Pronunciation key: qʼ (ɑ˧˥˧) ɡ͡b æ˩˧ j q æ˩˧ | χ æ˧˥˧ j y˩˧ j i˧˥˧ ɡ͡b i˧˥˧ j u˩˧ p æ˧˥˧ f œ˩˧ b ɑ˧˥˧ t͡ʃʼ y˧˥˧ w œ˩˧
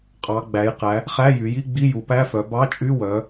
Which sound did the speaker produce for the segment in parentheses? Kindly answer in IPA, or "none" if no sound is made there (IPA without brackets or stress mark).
ɑ˩˧